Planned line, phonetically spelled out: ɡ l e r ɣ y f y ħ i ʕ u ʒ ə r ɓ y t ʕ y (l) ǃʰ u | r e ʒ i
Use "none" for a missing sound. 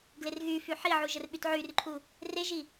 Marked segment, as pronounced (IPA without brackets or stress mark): r